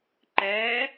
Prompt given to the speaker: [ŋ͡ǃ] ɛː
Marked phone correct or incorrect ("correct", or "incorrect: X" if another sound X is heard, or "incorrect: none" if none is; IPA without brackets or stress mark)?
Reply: incorrect: ǃ